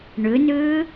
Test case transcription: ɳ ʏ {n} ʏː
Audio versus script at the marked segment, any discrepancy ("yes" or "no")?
no